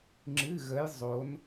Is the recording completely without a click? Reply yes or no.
no